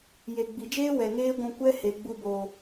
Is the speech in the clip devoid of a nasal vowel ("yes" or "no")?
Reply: no